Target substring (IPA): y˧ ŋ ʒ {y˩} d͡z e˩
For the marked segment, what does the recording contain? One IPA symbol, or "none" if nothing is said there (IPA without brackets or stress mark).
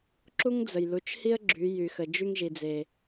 i˩